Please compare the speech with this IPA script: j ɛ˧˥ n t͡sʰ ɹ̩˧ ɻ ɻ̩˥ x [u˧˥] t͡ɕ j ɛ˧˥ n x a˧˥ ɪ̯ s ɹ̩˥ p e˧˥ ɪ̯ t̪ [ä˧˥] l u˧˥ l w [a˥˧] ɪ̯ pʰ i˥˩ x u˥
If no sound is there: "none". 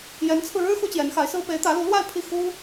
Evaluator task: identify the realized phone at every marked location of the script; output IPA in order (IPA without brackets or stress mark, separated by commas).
u˥, ä˧˥, a˥˧